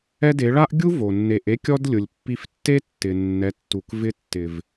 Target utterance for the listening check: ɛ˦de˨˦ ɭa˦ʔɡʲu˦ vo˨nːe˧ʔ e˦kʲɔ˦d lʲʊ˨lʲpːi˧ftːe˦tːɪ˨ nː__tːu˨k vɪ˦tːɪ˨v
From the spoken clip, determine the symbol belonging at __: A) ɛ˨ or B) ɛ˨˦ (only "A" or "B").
B